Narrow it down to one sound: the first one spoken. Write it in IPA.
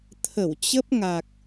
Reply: t̪ʰ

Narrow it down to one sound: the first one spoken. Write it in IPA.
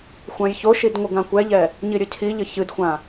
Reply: xʷ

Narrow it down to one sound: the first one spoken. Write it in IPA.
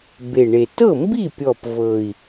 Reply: b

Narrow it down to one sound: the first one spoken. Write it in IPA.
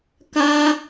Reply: k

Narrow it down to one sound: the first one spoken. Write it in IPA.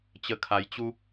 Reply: t͡ɕ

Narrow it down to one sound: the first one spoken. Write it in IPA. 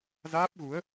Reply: z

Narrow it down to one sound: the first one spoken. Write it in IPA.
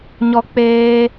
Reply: ɲ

